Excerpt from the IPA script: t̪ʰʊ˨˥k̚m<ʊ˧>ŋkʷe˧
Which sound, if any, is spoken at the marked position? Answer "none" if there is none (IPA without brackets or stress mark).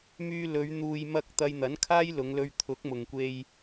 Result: ʊ˨